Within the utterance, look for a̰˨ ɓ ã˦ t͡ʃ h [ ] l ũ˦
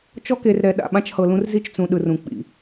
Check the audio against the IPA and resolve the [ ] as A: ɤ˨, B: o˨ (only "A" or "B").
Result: A